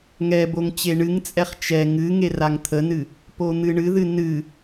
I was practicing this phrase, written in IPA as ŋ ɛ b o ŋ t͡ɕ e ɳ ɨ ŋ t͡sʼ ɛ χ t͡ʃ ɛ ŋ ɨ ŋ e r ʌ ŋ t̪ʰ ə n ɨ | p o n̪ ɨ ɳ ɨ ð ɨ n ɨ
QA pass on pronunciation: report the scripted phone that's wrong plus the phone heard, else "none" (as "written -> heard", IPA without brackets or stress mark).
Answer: ʌ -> a